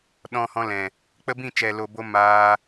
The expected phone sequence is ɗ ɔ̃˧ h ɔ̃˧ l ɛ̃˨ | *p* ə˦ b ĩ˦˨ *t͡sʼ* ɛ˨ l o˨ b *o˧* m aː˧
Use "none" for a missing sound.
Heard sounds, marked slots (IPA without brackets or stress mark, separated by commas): k͡p, t͡ʃ, o˧